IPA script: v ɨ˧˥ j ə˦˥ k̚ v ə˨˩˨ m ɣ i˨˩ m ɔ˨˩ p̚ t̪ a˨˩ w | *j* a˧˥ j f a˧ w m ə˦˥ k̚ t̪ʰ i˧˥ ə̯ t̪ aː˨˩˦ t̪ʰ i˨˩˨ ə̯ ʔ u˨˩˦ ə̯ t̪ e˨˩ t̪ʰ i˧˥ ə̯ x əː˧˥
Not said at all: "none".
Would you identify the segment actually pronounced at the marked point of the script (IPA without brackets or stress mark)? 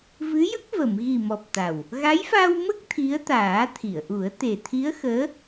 ɣ